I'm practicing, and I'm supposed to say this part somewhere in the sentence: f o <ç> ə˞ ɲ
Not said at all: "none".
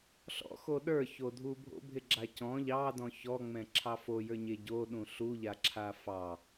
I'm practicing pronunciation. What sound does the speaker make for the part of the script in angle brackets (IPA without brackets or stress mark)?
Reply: j